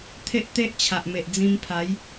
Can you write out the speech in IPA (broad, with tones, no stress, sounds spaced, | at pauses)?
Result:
t̪ʰ e˦ ʔ t̪ e˦ ʔ t͡ɕʰ a˨ ʔ m e˨ ʔ d͡z ĩ˧ m pʰ a˨˦ j